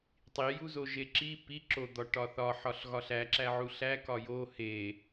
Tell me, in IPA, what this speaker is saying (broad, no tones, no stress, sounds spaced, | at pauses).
tˤ i j u z o ʒ e ǁ i p i ǁ o d̪ ɒ ʈ ɒ θ ɒ ħ ɒ ɬ ɣ ɒ ɬ æ ǁ æ ʕ u ɬ æ k ɒ j o h e